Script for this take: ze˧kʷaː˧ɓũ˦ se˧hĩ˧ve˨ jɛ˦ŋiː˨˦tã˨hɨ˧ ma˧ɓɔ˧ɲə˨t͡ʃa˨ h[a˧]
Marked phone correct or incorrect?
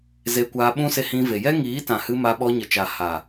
incorrect